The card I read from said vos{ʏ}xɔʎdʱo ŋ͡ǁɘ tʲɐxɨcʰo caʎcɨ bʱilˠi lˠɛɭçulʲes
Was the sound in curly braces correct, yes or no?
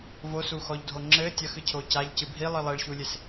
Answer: no